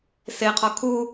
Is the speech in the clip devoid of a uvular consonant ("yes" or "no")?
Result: no